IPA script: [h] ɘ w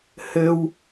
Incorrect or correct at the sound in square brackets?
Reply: correct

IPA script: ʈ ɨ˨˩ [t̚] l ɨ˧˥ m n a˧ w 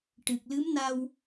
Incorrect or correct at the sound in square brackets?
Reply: incorrect: k̚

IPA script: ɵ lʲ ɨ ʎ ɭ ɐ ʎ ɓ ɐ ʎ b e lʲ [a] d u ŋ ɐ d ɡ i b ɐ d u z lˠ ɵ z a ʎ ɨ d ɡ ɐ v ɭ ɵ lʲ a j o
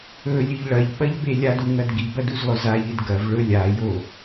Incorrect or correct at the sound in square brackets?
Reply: correct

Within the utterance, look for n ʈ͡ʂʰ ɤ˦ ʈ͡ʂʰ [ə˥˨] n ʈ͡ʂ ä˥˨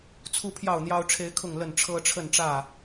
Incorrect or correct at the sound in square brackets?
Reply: correct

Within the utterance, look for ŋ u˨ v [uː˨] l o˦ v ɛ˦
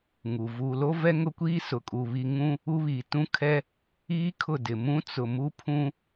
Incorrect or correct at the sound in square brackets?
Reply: correct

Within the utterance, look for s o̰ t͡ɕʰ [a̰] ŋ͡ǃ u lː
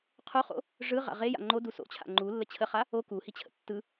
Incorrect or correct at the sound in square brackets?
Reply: correct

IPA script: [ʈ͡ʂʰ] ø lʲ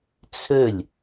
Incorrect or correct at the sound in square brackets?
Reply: incorrect: t͡sʰ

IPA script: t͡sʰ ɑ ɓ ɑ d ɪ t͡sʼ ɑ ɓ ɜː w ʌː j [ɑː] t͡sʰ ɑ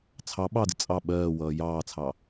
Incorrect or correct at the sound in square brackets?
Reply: correct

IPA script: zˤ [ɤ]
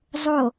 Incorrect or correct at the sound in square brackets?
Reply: incorrect: o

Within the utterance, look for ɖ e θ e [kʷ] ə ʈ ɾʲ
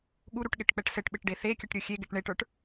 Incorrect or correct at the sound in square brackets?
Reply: incorrect: kʲ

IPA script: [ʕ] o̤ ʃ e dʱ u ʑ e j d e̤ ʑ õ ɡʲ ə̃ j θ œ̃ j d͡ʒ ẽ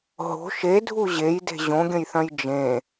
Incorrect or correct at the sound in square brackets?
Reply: incorrect: ɦ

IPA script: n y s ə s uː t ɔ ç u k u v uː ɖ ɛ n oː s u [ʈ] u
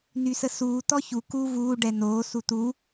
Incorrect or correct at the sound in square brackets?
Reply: incorrect: t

